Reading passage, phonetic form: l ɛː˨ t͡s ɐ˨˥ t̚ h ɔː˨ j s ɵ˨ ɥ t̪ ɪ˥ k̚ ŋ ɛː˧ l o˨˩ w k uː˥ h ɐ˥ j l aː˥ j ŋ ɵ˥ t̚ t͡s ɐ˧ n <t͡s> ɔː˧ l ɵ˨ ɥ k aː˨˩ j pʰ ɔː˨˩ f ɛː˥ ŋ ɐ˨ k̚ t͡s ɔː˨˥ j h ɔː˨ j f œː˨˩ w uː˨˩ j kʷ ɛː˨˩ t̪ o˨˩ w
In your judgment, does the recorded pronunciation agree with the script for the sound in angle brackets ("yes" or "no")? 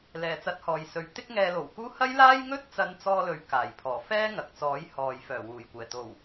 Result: yes